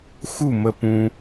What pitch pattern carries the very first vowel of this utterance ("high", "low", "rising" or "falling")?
falling